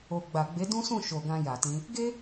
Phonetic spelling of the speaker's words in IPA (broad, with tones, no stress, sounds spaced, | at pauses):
o˨ ɡ͡b a˨ ɡ͡b e˨˦ d ũ˦ s ũ˦˨ ʃ o˨ ɡ ã˧ j a˨ t ĩ˧ | ɡ e˦